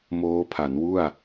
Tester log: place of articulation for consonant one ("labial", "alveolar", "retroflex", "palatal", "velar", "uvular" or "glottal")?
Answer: labial